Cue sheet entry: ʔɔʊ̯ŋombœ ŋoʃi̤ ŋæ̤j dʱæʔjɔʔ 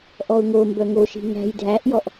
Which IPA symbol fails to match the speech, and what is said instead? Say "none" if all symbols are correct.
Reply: none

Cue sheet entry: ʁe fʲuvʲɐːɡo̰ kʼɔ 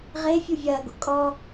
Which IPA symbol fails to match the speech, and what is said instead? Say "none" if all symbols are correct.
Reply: none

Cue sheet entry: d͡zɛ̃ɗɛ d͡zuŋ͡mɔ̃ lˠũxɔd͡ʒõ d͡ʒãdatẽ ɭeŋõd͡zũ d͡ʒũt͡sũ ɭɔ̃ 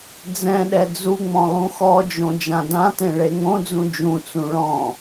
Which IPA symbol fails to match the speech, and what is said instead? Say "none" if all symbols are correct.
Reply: a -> ã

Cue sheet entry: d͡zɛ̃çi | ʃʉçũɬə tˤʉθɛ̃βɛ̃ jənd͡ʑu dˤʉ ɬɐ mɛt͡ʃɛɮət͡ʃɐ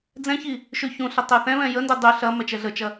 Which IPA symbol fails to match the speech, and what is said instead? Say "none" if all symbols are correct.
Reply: d͡ʑ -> d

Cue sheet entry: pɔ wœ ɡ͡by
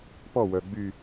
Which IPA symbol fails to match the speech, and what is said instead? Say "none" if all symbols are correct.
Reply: none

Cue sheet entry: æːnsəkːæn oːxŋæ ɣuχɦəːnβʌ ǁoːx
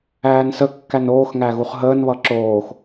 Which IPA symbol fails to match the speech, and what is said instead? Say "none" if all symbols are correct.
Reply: none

